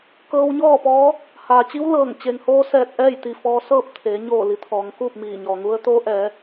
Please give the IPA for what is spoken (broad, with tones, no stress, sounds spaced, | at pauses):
k ɤː˧ w ɲ ɔː˥˨ p ɔː˧˥ | h aː˩ t͡ɕ i˧˥ w l ɤː˧˩ ŋ t͡ɕ e˩ ŋ h oː˧ s ɛː˧˩ t̚ ʔ ɛː˥˨ j t̪ i˧˩ f ɔː˧ s ɤː˥˨ p̚ t̪ʰ eː˩˧ ɲ oː˧˩ l i˩˧ t̪ʰ ɔː˩˧ ŋ k uː˥˨ p̚ m iː˧˩ ɲ ɔː˩ ŋ u˧˥ ə̯ t̪ oː˧˥ ʔ ɛː˩˧